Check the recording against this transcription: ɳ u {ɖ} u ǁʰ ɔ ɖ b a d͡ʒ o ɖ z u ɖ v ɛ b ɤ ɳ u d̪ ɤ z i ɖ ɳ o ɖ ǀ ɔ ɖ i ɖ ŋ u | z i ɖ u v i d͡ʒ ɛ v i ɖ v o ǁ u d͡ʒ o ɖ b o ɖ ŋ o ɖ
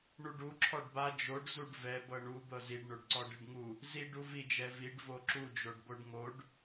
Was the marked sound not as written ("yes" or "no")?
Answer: no